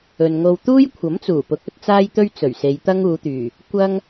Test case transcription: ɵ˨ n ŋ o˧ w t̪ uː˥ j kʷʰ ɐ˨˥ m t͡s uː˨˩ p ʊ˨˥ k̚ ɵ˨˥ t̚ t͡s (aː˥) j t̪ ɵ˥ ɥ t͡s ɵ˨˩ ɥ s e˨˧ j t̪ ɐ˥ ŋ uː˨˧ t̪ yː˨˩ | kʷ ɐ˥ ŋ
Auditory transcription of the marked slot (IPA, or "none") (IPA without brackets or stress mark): aː˥